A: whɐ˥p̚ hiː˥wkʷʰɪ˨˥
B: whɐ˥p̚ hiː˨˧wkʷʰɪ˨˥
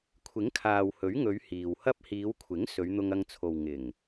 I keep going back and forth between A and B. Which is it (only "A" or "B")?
B